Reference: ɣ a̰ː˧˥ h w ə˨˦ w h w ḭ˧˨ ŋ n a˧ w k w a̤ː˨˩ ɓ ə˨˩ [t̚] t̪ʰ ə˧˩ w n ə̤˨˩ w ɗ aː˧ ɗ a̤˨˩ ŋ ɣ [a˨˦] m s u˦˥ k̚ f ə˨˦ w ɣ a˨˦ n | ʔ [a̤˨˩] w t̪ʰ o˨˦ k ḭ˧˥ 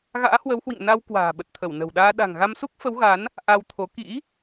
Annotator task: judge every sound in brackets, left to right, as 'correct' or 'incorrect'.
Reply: correct, incorrect, incorrect

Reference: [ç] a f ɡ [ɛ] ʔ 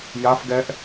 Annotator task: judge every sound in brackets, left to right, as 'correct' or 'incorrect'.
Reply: incorrect, correct

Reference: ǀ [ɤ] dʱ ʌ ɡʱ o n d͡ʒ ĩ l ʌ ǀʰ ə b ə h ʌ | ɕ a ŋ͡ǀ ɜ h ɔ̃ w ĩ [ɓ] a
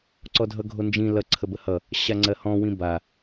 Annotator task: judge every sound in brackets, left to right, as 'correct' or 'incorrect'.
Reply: incorrect, incorrect

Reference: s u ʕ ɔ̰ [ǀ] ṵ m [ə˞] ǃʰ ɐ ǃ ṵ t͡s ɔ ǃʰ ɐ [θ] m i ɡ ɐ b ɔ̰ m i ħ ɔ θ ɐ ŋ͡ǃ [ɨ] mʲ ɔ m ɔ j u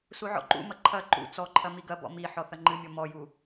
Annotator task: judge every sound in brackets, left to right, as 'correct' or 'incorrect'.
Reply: incorrect, incorrect, incorrect, correct

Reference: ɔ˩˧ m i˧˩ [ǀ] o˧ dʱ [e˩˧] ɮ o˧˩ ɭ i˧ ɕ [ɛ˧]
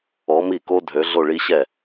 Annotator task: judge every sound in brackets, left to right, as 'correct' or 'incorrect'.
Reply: incorrect, incorrect, incorrect

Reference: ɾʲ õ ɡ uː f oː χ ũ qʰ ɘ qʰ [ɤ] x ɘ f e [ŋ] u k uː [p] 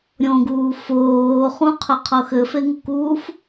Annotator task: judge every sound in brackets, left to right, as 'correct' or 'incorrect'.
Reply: correct, correct, incorrect

